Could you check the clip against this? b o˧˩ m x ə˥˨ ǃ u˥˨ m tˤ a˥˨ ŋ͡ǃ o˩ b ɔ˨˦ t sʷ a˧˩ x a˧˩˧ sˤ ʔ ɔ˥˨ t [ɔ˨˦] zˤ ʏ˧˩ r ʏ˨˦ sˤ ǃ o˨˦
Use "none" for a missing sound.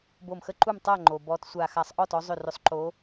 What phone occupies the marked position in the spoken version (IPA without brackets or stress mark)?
ɔ˨˦